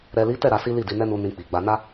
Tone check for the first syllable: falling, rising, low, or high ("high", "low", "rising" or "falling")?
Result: low